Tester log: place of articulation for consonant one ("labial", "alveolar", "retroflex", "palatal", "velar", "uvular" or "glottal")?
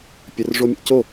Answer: labial